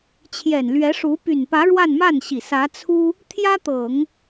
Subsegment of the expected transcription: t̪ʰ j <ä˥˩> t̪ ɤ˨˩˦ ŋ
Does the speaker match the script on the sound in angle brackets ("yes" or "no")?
no